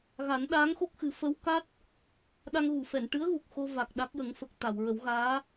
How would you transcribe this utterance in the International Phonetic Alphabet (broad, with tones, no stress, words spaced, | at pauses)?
ɣa˨˩˦nɗaː˧˥ŋxo˦˥k̚xɨ˨˩˦ fə˧˥wka˦˥t̚ | ɗa˧ŋɣu˨˩˨fɛ˨˩˨n ʈɨ˧˥ə̯ɣu˨˩k̚ xo˧va˨˩k̚ ɗa˦˥k̚jə˨˩˦ŋfə˨˩k̚ t̪a˨˩˨wɹə˨˩˦wɣaː˧˥